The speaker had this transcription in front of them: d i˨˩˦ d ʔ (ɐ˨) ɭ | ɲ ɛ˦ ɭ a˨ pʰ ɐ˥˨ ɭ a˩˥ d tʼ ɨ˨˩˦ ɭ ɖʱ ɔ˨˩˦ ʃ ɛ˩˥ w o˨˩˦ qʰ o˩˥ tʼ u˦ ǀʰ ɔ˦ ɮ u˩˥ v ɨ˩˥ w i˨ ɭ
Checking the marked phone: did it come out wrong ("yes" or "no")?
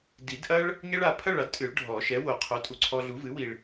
yes